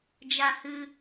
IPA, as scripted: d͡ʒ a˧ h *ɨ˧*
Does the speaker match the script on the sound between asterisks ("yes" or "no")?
yes